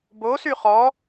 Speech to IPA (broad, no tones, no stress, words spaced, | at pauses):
bosy χɔ